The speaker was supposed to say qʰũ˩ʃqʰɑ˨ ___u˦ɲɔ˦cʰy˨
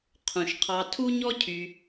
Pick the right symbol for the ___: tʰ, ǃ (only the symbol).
tʰ